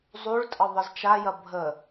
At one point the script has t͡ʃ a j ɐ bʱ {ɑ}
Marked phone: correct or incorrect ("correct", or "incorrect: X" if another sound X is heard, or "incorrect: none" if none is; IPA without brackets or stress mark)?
incorrect: ə